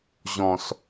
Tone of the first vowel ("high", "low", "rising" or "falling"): low